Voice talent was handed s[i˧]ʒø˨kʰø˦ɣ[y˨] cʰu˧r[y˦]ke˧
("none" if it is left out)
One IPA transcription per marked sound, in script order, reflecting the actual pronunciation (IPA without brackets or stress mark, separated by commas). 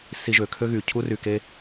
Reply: i˧, y˨, y˨